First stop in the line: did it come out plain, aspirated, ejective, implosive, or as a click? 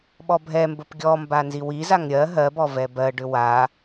implosive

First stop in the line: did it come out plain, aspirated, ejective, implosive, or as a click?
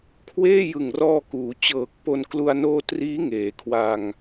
aspirated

